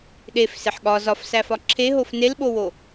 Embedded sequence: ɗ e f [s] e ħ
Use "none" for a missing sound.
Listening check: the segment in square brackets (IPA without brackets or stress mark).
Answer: s